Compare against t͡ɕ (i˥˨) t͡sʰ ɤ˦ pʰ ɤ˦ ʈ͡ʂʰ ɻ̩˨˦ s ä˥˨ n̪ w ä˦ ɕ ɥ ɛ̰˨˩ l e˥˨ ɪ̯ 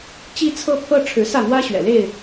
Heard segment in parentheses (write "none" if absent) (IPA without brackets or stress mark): i˦